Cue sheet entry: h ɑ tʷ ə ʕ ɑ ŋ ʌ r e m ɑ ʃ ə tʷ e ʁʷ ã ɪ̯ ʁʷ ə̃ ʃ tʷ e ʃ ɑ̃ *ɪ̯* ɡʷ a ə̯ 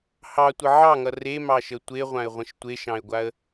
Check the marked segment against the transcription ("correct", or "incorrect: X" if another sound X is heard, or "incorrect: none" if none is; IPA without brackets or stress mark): correct